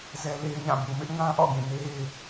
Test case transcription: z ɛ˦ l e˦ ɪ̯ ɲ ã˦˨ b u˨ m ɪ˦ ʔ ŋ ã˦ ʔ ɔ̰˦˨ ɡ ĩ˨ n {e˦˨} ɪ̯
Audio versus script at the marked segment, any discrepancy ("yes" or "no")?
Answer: yes